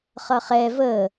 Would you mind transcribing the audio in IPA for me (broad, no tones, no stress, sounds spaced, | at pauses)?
χ ʌ χ ɛ v ə